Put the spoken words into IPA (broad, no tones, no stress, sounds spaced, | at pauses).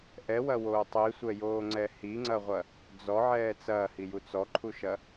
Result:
ʔ ɛ w ɐ w oː tˤ i sʷ ɛ j oː ŋ͡ǀ ɛ h i ŋ͡ǀ ɐ ʁʷ ɐ | d͡z ɔ ʕ ɛː t͡s ɐː h i j u t͡s ɔ ǃʰ u ʃ ɐ